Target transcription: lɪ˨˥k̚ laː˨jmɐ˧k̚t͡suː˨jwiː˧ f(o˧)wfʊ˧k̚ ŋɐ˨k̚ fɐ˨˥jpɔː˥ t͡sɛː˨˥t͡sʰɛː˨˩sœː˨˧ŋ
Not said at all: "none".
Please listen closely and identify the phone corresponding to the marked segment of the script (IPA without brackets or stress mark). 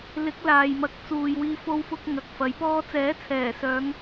o˧